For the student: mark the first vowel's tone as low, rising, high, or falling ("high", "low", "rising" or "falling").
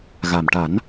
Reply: low